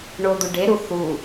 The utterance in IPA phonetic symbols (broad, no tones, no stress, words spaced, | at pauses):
ɳod̪uɖeɾu θu